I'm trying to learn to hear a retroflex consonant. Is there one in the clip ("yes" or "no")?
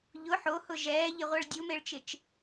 yes